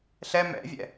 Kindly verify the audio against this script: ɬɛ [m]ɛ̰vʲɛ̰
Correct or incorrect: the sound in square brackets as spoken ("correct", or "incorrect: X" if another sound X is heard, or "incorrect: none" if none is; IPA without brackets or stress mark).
correct